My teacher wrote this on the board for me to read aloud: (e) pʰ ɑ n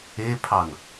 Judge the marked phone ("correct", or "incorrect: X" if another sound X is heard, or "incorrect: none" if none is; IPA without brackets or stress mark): correct